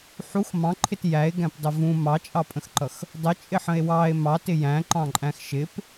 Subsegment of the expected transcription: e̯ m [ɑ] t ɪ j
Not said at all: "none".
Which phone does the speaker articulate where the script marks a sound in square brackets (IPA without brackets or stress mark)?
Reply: ɑ